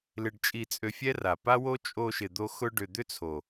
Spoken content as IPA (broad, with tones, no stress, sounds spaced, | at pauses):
l ɪ˧ ɖ t͡ʃʼ i˧ t͡sʼ ø˧ fʲ ɛ˦ r a˨ p a˦ w o˦ t͡ʃʼ o˧ ʃ ɪ˨ d̪ o˧ x ʊ˧ ɖ ʏ˨ d̪ ʏ˦ t͡sʰ o˨